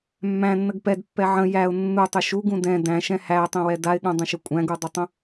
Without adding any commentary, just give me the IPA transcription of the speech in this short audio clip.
mː æ̃ nː ə ɡ p ɛ d pː ɛ ʕ ə̃ j æ ʊ̯ nː u tˤ ʏ ʃ u ɡ ũ d ɛ̃ d æ̃ ʃ ɛ̃ h æ tˤ ɛ̃ w ɛ d a ɪ̯ ɠ ũ dˤ ə̃ ʃ ʏ kʷʼ æ̃ ɡ u dˤ ʏ tˤ ə̃

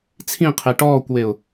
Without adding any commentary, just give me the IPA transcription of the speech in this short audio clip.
t͡sʰ ĩ qʰ e ʈ ɔː kʷ w e ʊ̯

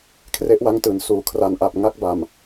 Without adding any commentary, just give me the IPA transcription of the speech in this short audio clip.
kʰ r e˦˥ ʔ w a˦˥ ŋ t ɯː˩˦ n s uː˩˦ kʰ r a˧ n ʔ a˨˩ p̚ ŋ a˥˩ k̚ b a˨˩ m

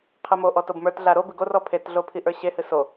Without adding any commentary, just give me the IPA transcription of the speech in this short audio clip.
qʰ ɨ m o ʔ ɔ t o b m ə˞ t ɮ a ɾ o b ɨ ɡ o r ɔ pʰ e t ɮ o pʰ i ʔ ə˞ ɕ e h ɨ s o

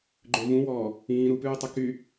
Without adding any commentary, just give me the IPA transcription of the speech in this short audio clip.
ɡ͡ǃ ø v ũ w ɔː | ĩː ɾ u p ʉː tˤ ɵ k y

